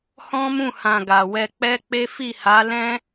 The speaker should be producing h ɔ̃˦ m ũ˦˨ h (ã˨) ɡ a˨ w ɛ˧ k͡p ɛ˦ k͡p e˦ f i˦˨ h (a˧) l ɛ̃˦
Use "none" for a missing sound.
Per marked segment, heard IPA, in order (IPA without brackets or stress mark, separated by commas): ã˨, a˨˦